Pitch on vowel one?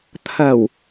low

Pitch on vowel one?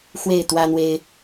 falling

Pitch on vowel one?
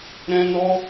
high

